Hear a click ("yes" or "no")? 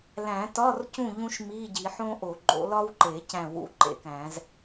yes